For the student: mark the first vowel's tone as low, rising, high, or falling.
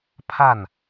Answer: falling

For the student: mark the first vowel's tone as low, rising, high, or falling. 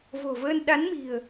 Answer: low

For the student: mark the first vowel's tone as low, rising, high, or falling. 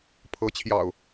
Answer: rising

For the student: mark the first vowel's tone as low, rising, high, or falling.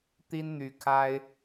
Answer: high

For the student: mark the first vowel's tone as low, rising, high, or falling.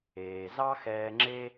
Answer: low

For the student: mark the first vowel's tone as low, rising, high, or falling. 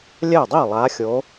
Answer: falling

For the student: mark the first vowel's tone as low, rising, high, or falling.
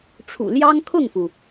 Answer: low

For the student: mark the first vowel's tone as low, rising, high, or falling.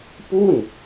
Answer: falling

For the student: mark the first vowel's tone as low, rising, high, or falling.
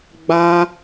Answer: high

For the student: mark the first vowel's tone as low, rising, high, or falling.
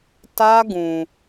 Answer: high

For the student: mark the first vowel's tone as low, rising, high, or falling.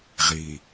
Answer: low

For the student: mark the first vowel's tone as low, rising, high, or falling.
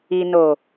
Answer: low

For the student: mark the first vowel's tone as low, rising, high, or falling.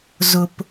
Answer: low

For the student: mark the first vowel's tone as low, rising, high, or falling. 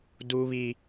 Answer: high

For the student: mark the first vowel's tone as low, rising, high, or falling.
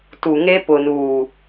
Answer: low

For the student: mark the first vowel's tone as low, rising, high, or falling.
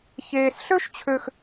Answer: low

